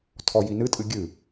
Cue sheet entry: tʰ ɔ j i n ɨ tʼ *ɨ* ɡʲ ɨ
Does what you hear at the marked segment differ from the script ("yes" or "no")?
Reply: no